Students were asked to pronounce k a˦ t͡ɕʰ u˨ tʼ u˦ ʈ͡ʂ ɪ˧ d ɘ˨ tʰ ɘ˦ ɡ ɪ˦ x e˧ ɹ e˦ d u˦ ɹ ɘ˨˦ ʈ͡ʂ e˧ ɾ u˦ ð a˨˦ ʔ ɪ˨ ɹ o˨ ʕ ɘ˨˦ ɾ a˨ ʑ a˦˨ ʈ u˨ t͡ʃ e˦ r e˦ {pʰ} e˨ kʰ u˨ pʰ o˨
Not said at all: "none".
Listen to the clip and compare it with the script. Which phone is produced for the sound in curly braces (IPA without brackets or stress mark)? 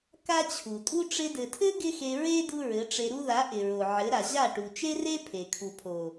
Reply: pʰ